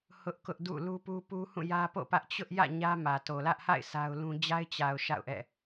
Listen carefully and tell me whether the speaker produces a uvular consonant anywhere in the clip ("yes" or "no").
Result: no